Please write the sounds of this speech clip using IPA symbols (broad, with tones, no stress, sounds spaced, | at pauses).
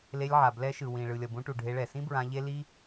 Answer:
l e˧ lʲ ʕ a˨ b l ɛ˧ ʃ ɯ˨ w ĩ˨ ɭ ɯ˨ lʲ ʌ˨ b ũ˧ ʈ u˨ ɖʱ e˧ ɭ ɛ˨ s ĩ˦ b ɹ ã˧ ʎ e˦ l i˦